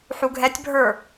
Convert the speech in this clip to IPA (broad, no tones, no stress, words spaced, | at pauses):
ħuɡʱɛtʲbʱə˞